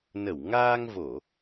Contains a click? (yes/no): no